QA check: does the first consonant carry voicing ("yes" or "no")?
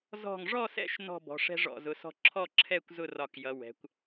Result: yes